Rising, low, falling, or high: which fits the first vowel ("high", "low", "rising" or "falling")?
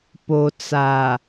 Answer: low